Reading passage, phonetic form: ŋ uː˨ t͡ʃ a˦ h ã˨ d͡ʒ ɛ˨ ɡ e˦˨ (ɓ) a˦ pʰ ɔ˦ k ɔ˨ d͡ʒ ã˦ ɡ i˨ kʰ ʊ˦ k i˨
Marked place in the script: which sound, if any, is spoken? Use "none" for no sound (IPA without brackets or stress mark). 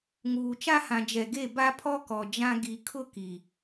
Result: b